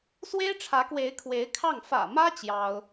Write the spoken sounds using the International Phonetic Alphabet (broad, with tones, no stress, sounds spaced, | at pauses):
s w e˥ ɪ̯ ʈ͡ʂʰ ä˧˥ k w e˧˥ ɪ̯ kʰ w e˧˥ ɪ̯ kʰ ɑ˥˩ ŋ f ä̰˨˩ m ä˥ t͡ɕ j ɑ˥ ʊ̯